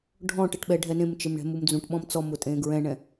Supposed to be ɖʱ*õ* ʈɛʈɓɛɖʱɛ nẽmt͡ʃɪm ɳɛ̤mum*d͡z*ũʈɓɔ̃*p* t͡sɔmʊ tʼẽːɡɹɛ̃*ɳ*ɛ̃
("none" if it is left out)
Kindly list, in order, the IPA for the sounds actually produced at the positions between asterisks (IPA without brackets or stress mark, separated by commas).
ɔ̃, d͡z, m, ɳ